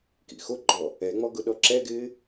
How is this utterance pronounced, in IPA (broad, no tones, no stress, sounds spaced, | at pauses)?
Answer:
k ḭ x o ɡ͡ǃ ɔ | ɛ ŋ͡m ɔ ɡ ʊ ɗ ɔ ǁ ɛ ɡ ɪː